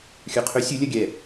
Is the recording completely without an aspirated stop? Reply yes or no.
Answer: no